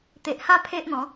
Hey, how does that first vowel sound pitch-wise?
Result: low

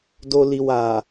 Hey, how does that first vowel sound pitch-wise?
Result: low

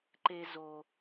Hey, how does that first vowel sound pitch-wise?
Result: high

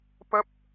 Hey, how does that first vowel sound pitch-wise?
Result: high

